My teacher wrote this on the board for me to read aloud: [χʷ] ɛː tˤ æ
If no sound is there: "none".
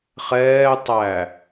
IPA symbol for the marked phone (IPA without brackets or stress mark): χ